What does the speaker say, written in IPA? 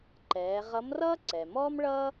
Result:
ǃ ɛː˩˧ ʁ ʌ˧˥ m r ʌː˥ ǀ ɛ˩ m ɔː˥ m ɭ ʌː˥

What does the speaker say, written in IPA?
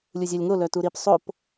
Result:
lʲ u zʲ œ lʲ ŋ o l œ t u ɾ i p sˤ o p

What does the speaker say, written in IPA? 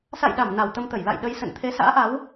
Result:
s a̰˧˨ j ɗ a˧˩ m n a˨˩ w t̪ ə˧ m t̪ ə˧˩ j l a̰˧˨ j ɗ ə˧ j s ə̰˧˨ n t̪ʰ e˨˦ s a̰ː˧˥ ʔ a˨˦ w

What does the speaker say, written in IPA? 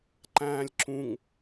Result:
ǃ æ̃ː lʲ ǁ ũ ŋ

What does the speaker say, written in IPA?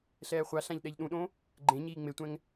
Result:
ɬ ɛː χʷ a ɬ ã ʎ ɗ ɛ ʎ ɗ ũ ɗ õ | ɡ͡ǃ ẽ ɲ iː ŋ͡m e tʷ ɛ̃ ŋ

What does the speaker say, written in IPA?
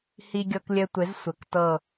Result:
h i˧ ɡʲ ɤ˧ k lʲ ɘ˧ tʷ ɪ˨˦ z sʷ ɘ˨ k t ɤ˦˨

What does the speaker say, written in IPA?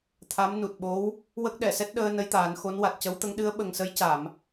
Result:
t̪ʰ a˧˥ m n u˨˩ t̚ ɓ o˧˥ w | w ə˦˥ k̚ ɗ ɛ˨˩˨ s ɛ˦˥ t̚ ɗ əː˧ n ə˧˥ j t̪ aː˨˩˦ n x o˧˥ n w a˨˩ t̚ c ə˧˥ w t̪ ə˧˥ ŋ ɗ ɨ˧˥ ə̯ ɓ ə˨˩ ŋ s ə˧˥ j c a˨˩˨ m

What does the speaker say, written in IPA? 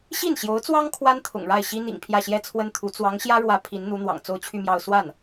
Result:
ɕ i˥˩ n ɕ j o˧˥ ʊ̯ t͡s w ɑ˥ ŋ kʰ w a˥ n t̪ʰ ʊ̰˨˩ ŋ ɻ a˥˩ ɪ̯ ɕ i˥ n̪ ḭ˨˩ ŋ pʰ j ä˥˩ ɕ j ɛ˥ t͡sʰ w ə˥ n t̪ʰ u˧˥ t͡s w ɑ˧˥ ŋ ɕ j ä˥ ɻ w ä˧˥ pʰ i˧˥ n n̪ u˧˥ n̪ w ɑ̰˨˩ ŋ t͡s o˥˧ ʊ̯ t͡ɕʰ y˥˧ m j ɑ˥˧ ʊ̯ s w a˥˩ n

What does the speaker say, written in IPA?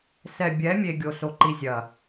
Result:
s ɛ˨ bʲ ɛ˨˦ mʲ e˦ ɡʲ o˦ s o˦ ǃ i˦ zʲ ɐ˨

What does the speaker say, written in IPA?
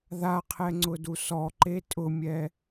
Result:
ð a qʰ ɛ ŋ͡ǀ ʊ d u s ɔ ǃ e tʼ ʊ mʲ ɛ

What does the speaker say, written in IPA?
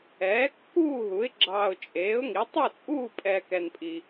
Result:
ɛː˨˥ kː uː˥˧ ɦ u˨˥ ɪ̯ ɡ͡ǁ ɑː˧ ʊ̯ t͡ʃʼ eː˨˥ ʊ̯ ŋ i˨˥ tˤ u˥˧ t͡sʼ uː˥˧ pʼ ɛː˧ k ɛ˧ n pʼ i˧

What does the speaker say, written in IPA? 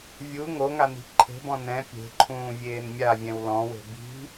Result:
vʲ u ŋ o ŋ a n i̤ ǃʰ e̤ b ɔ̃ n ɛ̃ pʲ e̤ ǃʰ ũː vʲ eː n mʲ a vʲ ɛ̃ w l ɔ̃ w e̤ b i̤

